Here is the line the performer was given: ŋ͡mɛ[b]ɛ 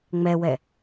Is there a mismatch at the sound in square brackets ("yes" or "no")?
yes